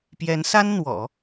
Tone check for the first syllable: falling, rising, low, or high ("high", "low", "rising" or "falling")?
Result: rising